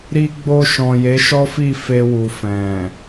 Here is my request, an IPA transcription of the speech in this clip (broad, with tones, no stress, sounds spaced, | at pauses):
ɾ i˧ ɡ͡b o˧ ʃ ɔ̃˨ j e˨˦ ʃ ɔ˦ f i˦˨ f e˧ w u˨ f ɛ̃˨